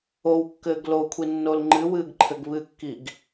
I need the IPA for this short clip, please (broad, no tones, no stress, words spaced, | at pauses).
owkːɘːɡ lokʷʰi nːolŋ͡ǃɨwɨːɡ ǃʰɘɡβɨkːiɡ